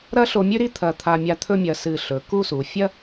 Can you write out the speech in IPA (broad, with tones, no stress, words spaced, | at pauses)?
ɾɐ˥ɬo˧mʲʉ˥ɾi˥ t̪ʰɐ˧˩t̪ʰa˧ mʲa˧t̪ʰɵ˥˧mʲɐ˧˩ sɨ˧˩ɬɵ˩˧ku˥˧su˩˧ fʲɐ˥